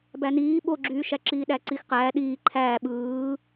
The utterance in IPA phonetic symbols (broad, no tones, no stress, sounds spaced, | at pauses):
b æ n iː ɓ o ɡ͡ǁ yː ʃ æ ǁ iː ɗ æ ǀ i x q æː ɗ iː ǃʰ æː ɓ ɯː